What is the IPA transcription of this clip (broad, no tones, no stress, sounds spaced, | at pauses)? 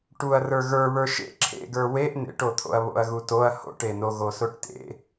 ʈ u ɐ̯ r ə˞ ɣ ə˞ β ə˞ ʃ ḛ ǁʰ ḛ ɡ ə˞ w e ʔ n ḛ ʈ o t̪ʰ o̰ ɐ̯ β o̰ ɐ̯ ɣ u t o ɐ̯ h o̰ ʈ e n o ɣ o s o ʈ t ḛ